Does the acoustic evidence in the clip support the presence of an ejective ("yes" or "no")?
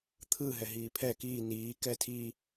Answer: no